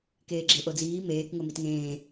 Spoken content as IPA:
k eː ɡ͡ǁ e ʔ o d͡z iː m eː k ŋ o m i t ŋ ẽː

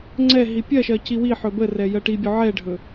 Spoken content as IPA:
ŋ͡ǀ ɛ ɦ i pʲ ɜ ʃ ɜ c i w i ħ ɵ b ə r ɛ j ɜ ʈ i bʲ ɵ ʕ ɛ ɖʱ ɵ

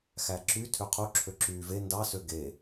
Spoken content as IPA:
x æ ǁ y tʰ ø qʰ u ǁʰ ø ǁ yː v e n d ɑ s ø ɡ e

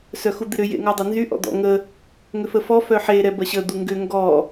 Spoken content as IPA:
s œ x u d̪ ɪ ɾ ʏ j ḛ ŋ ɔ dˤ ø n z y ʔ ɔ̰ d̪ ɔ̰ ŋ ə | ŋ ʏ f ə f ɔ f œ ħ e ɾ ɛ b ɐ ɕ ə d̪ u ŋ ɡ ʏ ŋ ɡ ɔ

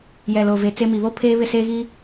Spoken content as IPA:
j ɛ˨ l o˨ v e˨ t͡s e˦ m i˨ β o˦ pʰ eː˦ β ɪ˦˨ s e˦ ɣ i˦

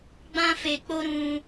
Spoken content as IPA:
ɡ͡b ã˧ f e˨ k͡p o˧ ɾ ũ˧

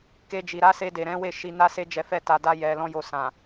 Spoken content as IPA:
k e˧ d͡ʒ i˨ ɾ a˨˦ s e˧ d e˨ ɾ ɛ̃˨˦ w e˦˨ ʃ i˧ n a˦ s e˦ d͡ʒ ɛ˧ f ɛ˧ t a˨ d a˧ j ɛ˨ l ɔ̃˧ j o˨ s ã˨

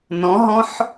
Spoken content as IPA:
n ɔ̃ ɦ ɔ̃ ħ

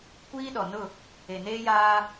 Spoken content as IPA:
kʷ iː˦ ɗ ɔ˨ n ʊ˦˨ | e˨ n eː˦ j aː˦

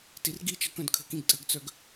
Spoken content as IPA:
t i r ɡ i t͡ʃ ʌ k œ̃ d kʰ ə̤ k ĩ ɡ tʼ ə̤ ɡ t͡s œ ɡ

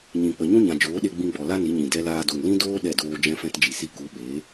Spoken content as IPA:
ɲ ĩ˨ k͡p ə˨ ɲ ũ˦ ɲ ã˨ d͡ʒ oː˨˦ ɗ e˧ ɡ͡b ĩ˧ ɡ͡b ɔ˨ l a˦ n i˨˦ ɲ ĩ˨ d ɛ˧ l aː˧ d o˨ ŋ l ĩ˦ d oː˦ ɗ ɛ˦˨ d oː˧ d͡ʒ ɛ̃˦ f ɛ̃˦ t d͡ʒ i˨ s i˦ k u˨˦ ɓ eː˨˦

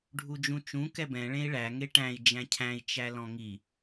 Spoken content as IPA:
ɖʱ u d͡ʒ ũ t͡ʃ ũ k ɛ b ɛ̃ ɭ ẽ i̯ ɭ æ ŋ e ʈ æ̃ i̯ d͡ʒ æ̃ cʰ æ̃ i̯ t͡ʃ æ l ɔ̃ ŋ i

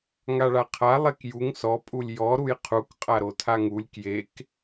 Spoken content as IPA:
ŋ a ɭ a qʰ a lˠ e k j u ŋ s ɔ pʼ u lʲ j ɔ ɾ u j qʰ u k qʼ a ɾ o tʰ a ŋ u lʲ k j e k

